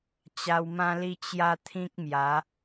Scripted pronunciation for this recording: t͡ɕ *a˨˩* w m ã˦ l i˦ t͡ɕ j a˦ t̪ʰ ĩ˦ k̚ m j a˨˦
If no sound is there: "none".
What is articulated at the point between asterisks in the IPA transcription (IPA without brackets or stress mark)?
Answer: a˧